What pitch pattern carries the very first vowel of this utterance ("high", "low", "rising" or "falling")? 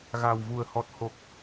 low